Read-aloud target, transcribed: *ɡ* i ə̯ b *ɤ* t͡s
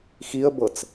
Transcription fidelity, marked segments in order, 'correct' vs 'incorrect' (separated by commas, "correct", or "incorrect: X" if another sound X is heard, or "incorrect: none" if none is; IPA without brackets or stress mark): incorrect: x, correct